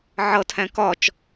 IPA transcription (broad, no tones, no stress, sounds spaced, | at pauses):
ʕ ʌ tʰ æ̃ k ɒ t͡ʃ